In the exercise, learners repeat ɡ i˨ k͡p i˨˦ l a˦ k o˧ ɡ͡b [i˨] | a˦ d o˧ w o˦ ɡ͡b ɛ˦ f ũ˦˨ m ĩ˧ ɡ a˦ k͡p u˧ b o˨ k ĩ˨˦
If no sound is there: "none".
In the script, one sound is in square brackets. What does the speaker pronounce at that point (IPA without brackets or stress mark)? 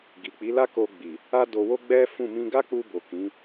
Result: i˨